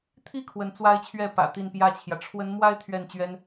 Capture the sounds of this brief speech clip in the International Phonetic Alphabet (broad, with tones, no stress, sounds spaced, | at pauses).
t̪ʰ i˥˩ kʰ w ə˧˥ n t͡s w a˥ ɪ̯ t͡ɕʰ ɥ ɛ˥˩ p ä̰˨˩ t̪ i˥˧ n p j ä˥˩ t͡ɕʰ j ä˩ ʈ͡ʂʰ w ə˧˥ n m w a˥ ɪ̯ t̪ʰ ɥ ɛ˥˩ n t͡ɕ ɥ ɛ˥ n